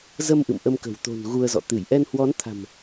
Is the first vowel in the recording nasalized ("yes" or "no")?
no